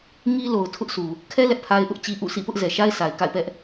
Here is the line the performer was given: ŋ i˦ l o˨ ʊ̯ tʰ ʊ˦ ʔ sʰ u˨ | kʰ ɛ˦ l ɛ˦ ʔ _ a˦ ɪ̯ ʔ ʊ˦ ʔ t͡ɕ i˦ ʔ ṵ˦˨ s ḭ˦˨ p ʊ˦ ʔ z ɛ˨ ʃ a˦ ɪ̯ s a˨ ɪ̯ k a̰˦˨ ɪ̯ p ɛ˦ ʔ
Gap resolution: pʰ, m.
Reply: pʰ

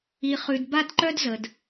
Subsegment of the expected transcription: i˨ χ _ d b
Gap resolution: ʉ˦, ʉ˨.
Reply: ʉ˨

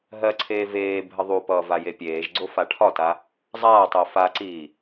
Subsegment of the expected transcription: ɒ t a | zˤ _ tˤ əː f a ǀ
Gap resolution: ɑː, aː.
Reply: aː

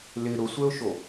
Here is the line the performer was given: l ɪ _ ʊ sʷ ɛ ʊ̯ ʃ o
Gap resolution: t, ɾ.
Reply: ɾ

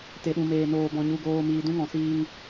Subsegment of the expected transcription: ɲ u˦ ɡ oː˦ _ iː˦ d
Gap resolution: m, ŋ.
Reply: m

